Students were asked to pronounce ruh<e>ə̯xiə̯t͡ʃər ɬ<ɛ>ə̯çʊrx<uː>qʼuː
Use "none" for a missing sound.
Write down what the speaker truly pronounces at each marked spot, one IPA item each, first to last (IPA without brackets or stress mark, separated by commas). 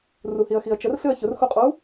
i, ɨ, u